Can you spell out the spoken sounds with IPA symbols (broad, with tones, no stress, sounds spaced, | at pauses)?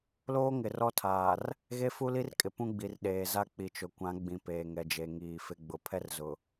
l oː˦ ŋ ɪ˨ r ɔ˦ tʰ aː˨ r | ɣ e˦ f u˦ l i˦ r kʼ ɪ˨ p ũ˦ ɡ͡b i˨ r ɗ eː˨ z a˦ k͡p i˨ t͡ʃ ʊ˨ kʷ ã˨˦ ɡ͡b ĩ˨ p eː˨ ŋ ɛ˨ d͡ʒ e˨ ŋ iː˨ f ɪ˨˦ ɡ͡b ʊ˨ pʰ ɛ˦ r z ʊ˨